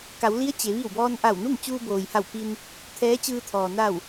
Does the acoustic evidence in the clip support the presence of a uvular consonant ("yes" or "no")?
no